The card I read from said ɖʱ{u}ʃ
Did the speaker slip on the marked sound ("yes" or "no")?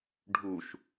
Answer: no